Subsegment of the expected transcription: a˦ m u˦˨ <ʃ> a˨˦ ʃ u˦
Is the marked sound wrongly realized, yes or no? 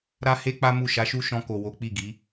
no